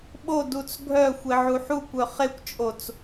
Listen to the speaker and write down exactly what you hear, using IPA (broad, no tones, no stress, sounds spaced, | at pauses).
ɓ o d u t͡s ɡʱ œ xʷ e ʕ u ħ u kʷ œ χ e kʷ t͡ʃʼ o t͡s